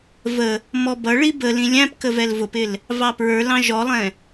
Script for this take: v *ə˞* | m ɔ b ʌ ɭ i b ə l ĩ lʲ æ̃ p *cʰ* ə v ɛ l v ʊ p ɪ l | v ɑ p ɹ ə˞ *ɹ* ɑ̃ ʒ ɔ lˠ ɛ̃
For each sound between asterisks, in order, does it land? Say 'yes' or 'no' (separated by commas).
no, no, no